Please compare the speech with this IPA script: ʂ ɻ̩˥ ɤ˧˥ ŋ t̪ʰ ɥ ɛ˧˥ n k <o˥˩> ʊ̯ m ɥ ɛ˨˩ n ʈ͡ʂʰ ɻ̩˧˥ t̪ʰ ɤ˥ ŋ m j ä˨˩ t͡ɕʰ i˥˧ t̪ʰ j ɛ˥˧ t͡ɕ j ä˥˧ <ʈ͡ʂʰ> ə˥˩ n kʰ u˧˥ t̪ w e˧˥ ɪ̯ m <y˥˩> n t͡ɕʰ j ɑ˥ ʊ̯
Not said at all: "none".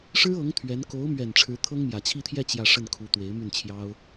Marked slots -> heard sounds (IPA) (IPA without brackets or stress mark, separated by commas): o˧˥, ʂ, y˥˩